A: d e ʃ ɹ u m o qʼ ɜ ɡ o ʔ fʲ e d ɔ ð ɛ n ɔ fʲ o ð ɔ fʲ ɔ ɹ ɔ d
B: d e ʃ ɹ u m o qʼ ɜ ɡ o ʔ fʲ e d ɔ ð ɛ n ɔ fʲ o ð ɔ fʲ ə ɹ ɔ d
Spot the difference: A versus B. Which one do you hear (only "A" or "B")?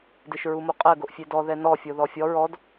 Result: A